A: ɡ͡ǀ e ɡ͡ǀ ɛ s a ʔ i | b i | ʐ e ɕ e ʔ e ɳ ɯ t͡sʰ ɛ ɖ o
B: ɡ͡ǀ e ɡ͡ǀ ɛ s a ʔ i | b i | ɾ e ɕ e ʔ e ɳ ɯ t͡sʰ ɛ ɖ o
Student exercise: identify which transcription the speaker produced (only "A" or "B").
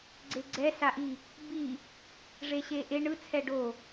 A